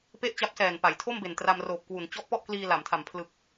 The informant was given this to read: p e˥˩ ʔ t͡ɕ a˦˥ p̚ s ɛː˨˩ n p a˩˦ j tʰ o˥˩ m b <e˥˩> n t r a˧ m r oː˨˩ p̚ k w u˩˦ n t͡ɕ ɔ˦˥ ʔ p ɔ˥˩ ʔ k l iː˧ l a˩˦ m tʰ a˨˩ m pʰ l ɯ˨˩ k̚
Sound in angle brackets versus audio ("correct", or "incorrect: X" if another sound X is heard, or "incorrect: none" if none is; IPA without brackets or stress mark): incorrect: e˨˩